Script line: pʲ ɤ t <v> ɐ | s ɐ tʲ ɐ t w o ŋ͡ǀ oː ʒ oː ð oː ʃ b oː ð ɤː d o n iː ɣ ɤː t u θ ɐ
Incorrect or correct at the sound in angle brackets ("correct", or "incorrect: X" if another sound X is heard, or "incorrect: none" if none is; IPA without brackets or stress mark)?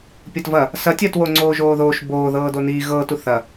correct